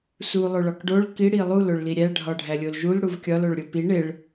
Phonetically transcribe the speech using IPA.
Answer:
s u lˠ o ɭ ɒ k ɖ o ɭ k i ɽ i lˠ u l o ɭ l i ɾʲ æ ɖʱ ɒ ɖʱ æ lʲ o l ʒ u l ɽ u v kʲ ɒ l o ɭ ɾʲ o p i ɳ e ɭ

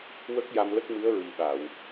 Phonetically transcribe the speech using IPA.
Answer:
w ə˦˥ k̚ j a˧ m l ə˦˥ k̚ m ɨ˧˥ ə̯ ɹ i˨˩ ɓ a˨˩˨ w

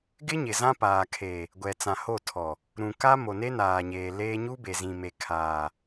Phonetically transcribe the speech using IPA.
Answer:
ɡ ɪ˦ ɲ ɪ˨ z ã˦ p aː˨ kʰ eː˨ | ɡʷ ɛ˨ t͡s ã˨ h o˦˨ tʰ ɔ˨ | ɾ ũ˨ k a˦ m o˨ n e˦ n aː˨ ɲ eː˨ l eː˦ ɲ u˦ b e˨ z ĩ˨ m e˨ kʰ aː˨

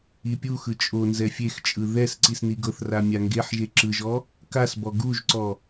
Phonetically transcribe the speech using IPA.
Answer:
i pʲ u x ɯ t͡ʃʼ o n z ɛ fʲ e x t͡ʃʼ ɯ ð ɛ s ǀ i s n i ɡ ɤ θ r a mʲ a ŋ ɡ e ħ ʒ e ǁ ɯ ʒ ɔ | k a s b ɔ ɡ u ʒ ǀ ɔ

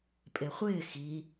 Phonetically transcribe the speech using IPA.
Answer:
pʼ e χʷ ɪː x i

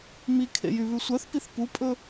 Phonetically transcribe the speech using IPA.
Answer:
m i kʰ ḛ j y β ʉ sʷ œ θ p i θ p u pʼ ɵ

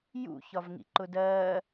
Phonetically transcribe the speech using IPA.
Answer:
j ṵ ç ɒ v ŋ ḭ ǃ ʊ d ɜː

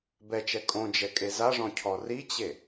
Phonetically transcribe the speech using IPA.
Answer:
b ɛ t͡ʃ ɛ kʼ õ d͡ʒ ɛ kʼ e z a ʐ ɔ̃ cʰ ɔ r i t͡ɕ e

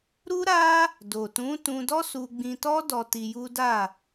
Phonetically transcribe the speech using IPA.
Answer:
ɾ u˦ ɾ a˦ | d o˨ t ũ˨˦ t ũ˧ d ɔ˦ s u˧ ɡ͡b ĩ˧ t ɔ˦ d ɔ˧ t i˧ j u˦ d a˦˨

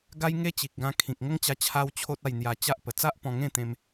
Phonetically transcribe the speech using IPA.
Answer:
ɡ a˦ j ŋ e˦ t͡ɕ i˨ k̚ ɡ ã˧ kʰ ĩ˨ k̚ ŋ ə˦ ŋ t͡ɕ a˧ t͡ɕʰ a˦ w t͡ɕʰ o˦ t̚ a˥˧ j n̪ j a˧ t͡ɕ a˦ ʔ p ə˨˩ t͡s a˦ ʔ p ɔ̃˧ ŋ ẽ˥˧ t̪ ẽ˧ m

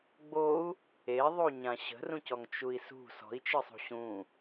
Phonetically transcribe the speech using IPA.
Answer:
ɡ͡b o u̯ | e ðˤ u ɲ ã ɕ ə̤ r ũ c ɔ ŋ t͡ʃ u i̯ s ṳ s ɔ̤ i̯ t͡ʃ ɨ sˤ ṳ ɕ ũ

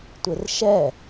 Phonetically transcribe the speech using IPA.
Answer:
tʷ e r ʃ ɛ

